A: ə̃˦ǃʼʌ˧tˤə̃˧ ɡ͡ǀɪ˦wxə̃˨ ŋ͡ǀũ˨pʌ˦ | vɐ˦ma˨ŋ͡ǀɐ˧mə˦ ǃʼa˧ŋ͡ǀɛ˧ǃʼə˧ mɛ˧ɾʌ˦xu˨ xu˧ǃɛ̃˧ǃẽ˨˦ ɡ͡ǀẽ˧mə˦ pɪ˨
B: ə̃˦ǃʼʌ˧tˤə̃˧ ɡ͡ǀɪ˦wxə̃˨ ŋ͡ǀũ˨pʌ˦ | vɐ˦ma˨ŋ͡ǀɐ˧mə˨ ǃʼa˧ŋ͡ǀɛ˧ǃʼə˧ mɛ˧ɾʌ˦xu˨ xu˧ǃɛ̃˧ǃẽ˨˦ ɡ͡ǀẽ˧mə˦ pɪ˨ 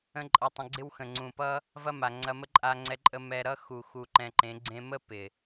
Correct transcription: A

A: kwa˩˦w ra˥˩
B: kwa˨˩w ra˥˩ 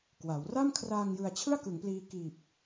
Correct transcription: A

